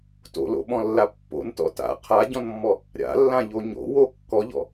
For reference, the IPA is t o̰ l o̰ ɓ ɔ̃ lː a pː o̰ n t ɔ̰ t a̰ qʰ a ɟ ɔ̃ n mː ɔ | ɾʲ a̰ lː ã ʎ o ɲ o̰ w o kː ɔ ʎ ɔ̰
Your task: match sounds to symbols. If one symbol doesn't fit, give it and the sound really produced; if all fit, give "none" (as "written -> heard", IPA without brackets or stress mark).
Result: none